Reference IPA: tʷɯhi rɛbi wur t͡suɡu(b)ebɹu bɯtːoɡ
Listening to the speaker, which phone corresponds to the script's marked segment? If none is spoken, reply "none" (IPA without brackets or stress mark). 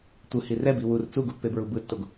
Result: pː